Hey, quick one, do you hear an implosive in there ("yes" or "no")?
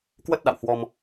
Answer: yes